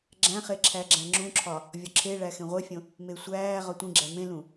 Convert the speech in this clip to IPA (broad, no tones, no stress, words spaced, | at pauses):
ɡ͡ǁæ̃χe ǁʰæɡ͡ǁæ̃ŋ͡ǁũǁʰɒ | vʲɒǁʰe ɭæxẽʁʷefʲõ | mesʷæː ʁɒtʷĩɡ͡ǁæ mẽlũ